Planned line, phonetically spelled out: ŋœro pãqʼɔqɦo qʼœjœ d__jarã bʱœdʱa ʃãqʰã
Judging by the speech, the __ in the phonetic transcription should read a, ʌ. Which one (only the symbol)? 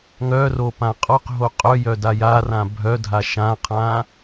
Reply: a